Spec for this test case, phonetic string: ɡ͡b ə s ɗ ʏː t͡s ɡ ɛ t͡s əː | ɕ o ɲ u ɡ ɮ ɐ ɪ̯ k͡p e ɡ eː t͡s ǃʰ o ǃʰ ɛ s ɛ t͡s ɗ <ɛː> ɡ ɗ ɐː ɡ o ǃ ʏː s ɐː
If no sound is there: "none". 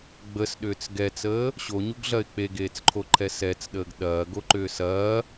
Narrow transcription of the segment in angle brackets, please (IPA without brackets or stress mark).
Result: əː